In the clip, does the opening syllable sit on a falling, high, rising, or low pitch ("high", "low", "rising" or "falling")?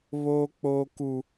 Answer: high